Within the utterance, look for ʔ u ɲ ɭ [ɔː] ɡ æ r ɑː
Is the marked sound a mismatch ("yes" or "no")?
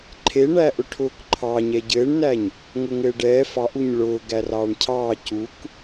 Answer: yes